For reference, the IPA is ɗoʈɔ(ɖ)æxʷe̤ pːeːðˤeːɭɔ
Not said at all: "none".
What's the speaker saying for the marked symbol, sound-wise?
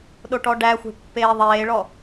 ɖ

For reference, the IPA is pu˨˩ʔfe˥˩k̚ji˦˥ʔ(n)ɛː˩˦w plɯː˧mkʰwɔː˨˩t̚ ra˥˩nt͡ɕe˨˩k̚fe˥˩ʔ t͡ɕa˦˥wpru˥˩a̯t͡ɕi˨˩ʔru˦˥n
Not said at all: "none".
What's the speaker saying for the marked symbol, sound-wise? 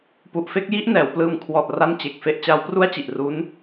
n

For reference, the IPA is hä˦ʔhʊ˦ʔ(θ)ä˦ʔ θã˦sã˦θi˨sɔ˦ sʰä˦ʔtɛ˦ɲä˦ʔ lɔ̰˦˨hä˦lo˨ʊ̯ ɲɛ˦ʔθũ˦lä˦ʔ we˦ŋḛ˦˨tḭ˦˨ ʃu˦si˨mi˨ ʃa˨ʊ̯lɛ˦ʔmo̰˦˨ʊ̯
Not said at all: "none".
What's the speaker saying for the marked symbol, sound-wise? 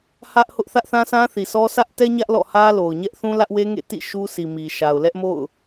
θ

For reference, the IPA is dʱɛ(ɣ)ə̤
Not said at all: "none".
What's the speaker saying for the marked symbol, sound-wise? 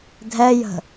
j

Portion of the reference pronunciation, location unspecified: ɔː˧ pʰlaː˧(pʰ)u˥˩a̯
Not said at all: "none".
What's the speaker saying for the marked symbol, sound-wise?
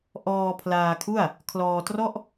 kʰ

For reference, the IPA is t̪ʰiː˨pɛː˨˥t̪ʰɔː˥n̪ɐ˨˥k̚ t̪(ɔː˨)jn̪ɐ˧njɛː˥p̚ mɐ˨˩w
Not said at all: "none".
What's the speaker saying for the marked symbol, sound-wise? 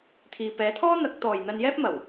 ɔː˨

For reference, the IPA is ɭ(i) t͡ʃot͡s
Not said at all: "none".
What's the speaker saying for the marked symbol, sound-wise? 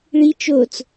i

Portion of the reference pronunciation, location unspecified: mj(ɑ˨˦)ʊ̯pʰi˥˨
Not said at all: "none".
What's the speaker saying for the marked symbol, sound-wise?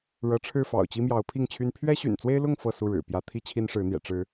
ɑ˨˦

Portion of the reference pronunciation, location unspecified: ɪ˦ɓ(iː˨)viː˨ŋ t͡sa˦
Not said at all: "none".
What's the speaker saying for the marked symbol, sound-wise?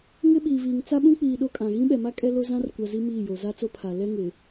iː˨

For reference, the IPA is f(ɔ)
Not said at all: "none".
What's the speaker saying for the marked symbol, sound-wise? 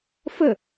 ə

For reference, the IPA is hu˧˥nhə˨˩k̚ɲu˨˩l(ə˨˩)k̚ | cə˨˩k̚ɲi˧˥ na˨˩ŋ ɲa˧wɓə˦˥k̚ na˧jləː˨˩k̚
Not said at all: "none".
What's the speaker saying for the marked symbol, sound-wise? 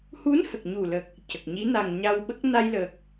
ə˨˩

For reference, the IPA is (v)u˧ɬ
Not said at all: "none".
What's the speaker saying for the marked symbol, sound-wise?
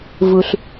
v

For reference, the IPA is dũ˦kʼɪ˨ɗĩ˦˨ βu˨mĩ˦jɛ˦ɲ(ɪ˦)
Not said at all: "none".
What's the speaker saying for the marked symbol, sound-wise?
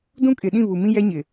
ɪ˨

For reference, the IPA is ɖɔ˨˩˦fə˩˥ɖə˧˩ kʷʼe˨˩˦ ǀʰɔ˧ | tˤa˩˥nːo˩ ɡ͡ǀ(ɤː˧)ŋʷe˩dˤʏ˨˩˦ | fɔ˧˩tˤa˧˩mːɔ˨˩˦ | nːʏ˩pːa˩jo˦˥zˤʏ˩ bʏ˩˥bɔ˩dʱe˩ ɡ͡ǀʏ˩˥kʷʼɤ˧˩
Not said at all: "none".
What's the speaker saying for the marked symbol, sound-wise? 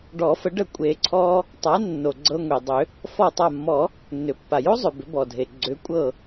ɤ˧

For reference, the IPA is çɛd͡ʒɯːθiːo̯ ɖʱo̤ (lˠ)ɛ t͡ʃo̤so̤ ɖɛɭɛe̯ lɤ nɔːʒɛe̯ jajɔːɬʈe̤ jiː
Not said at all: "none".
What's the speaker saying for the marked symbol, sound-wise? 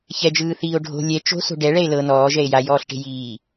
lʲ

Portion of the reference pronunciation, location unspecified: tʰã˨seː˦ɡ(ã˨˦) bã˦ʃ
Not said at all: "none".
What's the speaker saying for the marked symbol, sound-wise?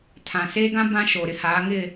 ã˦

